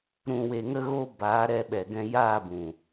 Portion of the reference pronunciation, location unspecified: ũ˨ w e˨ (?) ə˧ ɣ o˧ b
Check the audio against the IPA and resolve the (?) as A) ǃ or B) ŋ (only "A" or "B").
B